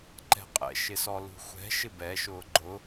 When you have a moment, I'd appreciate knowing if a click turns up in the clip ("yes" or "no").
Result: yes